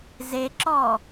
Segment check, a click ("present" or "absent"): present